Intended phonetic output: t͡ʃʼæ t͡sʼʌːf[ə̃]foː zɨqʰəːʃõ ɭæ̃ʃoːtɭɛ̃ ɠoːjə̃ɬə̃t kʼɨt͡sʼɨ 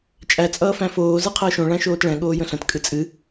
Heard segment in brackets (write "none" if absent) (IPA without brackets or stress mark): æ̃